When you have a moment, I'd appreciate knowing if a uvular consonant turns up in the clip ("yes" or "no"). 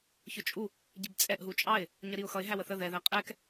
yes